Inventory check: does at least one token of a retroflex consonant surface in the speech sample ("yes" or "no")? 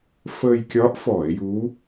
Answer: no